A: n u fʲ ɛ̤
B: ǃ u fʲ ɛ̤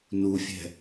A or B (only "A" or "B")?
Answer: A